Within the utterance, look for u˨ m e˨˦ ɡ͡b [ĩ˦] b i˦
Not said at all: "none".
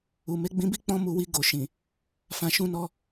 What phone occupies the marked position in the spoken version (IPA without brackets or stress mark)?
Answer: ĩ˧